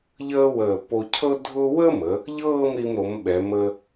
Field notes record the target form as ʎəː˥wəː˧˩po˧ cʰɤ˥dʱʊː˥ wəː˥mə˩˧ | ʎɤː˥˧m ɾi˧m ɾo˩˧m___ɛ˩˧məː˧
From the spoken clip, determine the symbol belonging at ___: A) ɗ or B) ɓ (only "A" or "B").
B